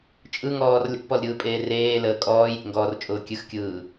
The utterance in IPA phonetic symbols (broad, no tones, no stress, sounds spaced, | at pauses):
t͡ʃʼ ɯ ŋ ɔː r lʲ ɔ̰ p ɔ l ɾʲ ɯː pʼ eː r eː l əː kʼ ɔː j ɾʲ ḛ ŋ ɡ ɔː r t͡ʃʼ ʊː kʲ ɨ x kʲ ɯː